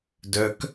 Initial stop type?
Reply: plain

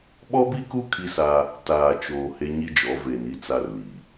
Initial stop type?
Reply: implosive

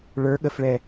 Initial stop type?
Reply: implosive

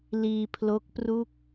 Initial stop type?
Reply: aspirated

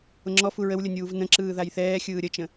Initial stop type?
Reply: click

